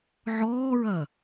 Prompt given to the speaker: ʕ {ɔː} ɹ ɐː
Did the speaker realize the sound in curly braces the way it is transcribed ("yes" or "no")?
yes